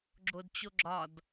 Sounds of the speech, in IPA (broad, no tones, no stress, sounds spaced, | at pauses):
ɡ͡ǁ o d t͡ɕ o ɡ͡ǁ ɒ d